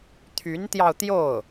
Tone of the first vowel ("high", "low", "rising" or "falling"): rising